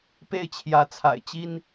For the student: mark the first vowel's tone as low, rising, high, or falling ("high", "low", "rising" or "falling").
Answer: falling